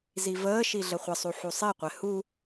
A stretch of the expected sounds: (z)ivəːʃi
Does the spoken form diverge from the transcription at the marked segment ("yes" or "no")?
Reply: no